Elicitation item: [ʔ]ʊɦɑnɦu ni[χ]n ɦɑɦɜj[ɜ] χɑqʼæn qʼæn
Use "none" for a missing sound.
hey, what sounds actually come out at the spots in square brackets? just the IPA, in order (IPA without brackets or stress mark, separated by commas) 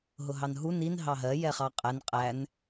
ɦ, none, ɛ